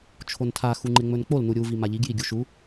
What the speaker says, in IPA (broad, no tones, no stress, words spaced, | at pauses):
t͡ʃʰontʰa xuŋ͡ǃeŋ͡mɵnk͡pol nuɾʲu vimaʎiɡ jiɡʲuʃu